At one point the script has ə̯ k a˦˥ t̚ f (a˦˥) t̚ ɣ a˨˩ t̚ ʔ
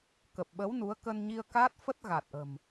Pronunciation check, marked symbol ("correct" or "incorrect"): incorrect